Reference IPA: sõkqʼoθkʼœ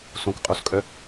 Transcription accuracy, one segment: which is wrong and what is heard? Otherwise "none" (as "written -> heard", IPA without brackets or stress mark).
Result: θ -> s